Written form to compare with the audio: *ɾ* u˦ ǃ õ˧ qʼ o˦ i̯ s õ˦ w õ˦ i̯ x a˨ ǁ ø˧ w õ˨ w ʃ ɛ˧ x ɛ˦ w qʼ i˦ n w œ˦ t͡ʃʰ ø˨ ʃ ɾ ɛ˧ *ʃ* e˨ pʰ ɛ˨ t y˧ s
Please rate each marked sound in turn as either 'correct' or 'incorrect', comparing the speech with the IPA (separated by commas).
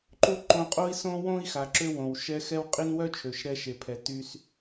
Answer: incorrect, correct